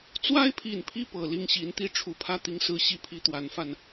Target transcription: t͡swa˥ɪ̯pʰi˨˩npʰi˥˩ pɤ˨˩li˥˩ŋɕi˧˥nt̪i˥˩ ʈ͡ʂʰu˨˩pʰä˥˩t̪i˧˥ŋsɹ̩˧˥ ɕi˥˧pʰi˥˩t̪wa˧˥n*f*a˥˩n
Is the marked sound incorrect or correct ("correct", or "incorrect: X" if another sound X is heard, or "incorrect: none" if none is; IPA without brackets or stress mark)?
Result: correct